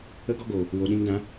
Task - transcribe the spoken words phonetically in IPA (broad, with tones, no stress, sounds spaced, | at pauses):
ə˦ ɡ ɔ˦ ɡ oː˨ | w o˨ ɗ ĩ˧ ŋ d ã˨˦